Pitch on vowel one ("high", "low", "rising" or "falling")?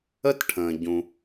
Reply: high